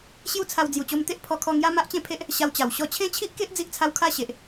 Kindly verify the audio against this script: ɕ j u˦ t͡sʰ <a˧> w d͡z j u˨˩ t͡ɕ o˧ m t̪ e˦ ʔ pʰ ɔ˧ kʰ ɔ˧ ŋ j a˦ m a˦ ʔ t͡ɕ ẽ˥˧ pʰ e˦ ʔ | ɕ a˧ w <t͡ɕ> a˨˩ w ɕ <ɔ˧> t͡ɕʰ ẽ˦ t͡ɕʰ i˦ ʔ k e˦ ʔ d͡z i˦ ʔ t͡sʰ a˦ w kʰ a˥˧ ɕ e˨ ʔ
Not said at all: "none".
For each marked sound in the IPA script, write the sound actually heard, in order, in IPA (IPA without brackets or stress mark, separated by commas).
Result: a˧, t͡ɕ, ɔ˧